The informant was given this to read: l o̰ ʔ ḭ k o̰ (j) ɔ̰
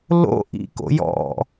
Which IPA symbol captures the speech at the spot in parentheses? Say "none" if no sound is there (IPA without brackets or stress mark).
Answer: j